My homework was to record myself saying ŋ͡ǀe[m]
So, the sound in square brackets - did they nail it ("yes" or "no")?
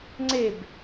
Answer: no